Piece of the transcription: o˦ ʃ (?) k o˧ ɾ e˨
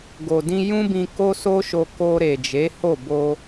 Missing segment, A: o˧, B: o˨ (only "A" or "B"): A